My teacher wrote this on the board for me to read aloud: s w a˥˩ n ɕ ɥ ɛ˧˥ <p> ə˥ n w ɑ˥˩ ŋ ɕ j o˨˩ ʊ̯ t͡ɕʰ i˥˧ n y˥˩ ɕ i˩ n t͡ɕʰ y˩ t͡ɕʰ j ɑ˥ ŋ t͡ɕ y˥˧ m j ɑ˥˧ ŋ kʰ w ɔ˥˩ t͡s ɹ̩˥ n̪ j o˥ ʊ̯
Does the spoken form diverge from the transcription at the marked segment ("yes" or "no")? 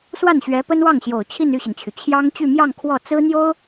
no